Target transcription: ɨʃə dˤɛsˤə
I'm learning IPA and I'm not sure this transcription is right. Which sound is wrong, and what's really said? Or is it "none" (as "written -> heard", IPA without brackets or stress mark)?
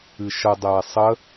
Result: none